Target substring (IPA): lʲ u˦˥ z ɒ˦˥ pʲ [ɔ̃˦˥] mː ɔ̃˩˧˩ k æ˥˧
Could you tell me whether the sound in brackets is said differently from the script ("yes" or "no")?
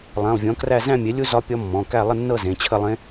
yes